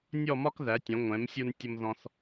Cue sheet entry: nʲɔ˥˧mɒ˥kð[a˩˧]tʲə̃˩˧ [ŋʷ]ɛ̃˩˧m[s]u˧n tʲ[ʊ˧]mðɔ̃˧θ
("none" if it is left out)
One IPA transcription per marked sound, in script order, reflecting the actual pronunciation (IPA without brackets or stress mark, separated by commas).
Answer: æ˩˧, ŋʷ, sʲ, ʊ˧